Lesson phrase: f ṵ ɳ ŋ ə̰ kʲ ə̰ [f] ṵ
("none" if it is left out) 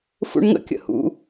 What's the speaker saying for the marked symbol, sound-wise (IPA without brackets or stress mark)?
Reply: h